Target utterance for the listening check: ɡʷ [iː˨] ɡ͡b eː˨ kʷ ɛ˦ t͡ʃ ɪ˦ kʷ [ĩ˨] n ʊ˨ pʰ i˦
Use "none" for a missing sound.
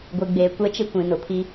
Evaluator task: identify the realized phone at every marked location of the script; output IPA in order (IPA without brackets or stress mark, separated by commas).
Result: i˨, ĩ˨